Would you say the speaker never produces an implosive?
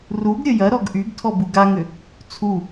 yes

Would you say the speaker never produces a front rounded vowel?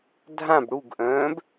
no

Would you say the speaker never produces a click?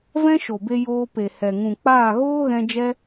yes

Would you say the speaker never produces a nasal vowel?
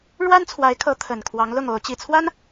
yes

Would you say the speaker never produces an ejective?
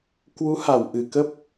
yes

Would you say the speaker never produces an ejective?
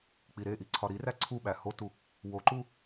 yes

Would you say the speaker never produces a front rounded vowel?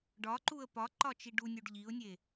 yes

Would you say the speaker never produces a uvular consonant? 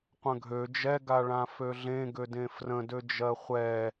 no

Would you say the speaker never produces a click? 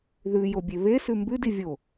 yes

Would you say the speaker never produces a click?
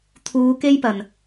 yes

